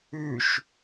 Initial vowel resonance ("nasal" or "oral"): oral